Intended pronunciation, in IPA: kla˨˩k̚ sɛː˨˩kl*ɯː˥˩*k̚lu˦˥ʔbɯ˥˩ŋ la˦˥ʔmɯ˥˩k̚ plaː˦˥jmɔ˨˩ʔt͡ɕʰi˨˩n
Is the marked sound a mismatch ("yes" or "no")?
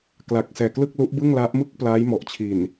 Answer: yes